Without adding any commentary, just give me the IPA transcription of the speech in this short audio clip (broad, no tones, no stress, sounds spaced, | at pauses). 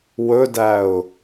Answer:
w ɵ d æ ʊ̯